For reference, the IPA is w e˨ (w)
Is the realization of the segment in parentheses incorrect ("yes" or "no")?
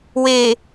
yes